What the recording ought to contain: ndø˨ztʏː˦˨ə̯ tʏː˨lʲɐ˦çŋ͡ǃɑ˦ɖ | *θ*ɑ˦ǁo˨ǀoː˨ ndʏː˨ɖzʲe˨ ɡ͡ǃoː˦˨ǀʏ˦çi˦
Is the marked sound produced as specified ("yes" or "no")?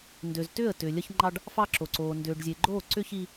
no